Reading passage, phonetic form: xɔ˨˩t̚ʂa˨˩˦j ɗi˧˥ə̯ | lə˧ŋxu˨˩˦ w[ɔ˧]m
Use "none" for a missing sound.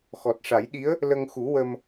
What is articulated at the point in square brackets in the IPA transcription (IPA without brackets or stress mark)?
ə˧